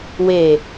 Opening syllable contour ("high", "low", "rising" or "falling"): low